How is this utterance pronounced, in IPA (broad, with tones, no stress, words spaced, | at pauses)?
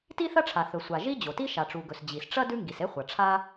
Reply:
ti˥θɐ˥ʈ͡ʂʰa˩ θɵ˩sʷa˩ʒi˥ d͡ʑo˩ti˥ ʃa˩ʈ͡ʂu˩ɡɵ˩s d͡ʑi˩sʈ͡ʂɐ˥ dʉ˥ŋɡi˩se˥χʷɐ˩ ʈ͡ʂʰa˥